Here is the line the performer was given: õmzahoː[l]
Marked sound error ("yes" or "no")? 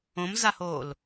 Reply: no